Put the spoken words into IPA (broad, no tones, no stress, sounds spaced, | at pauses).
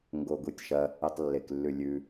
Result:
ŋ ɡ o ɡ u tʲ ʃ ɐ | e tˤ lː e k lː ʉ lʲ ʉ